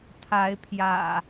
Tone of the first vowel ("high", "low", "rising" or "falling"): rising